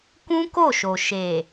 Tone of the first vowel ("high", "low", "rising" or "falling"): high